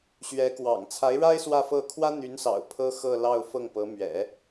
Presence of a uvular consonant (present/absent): absent